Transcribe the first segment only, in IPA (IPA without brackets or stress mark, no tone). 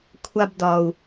kʷʰ